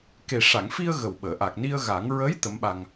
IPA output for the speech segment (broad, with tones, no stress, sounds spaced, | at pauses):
k e˨˩ ʂ a˨˩˨ ŋ f i˧ ə̯ ɣ ə˨˩ w ɓ əː˨˩˨ ʔ a˨˩ k̚ n i˧ ə̯ ɣ a˨˩˦ ŋ ɹ ə˧˥ j t̪ ə˧˥ m ɓ a˧ ŋ